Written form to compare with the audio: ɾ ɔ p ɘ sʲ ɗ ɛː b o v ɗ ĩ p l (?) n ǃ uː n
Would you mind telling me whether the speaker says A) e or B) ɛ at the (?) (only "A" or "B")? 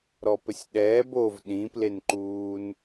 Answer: A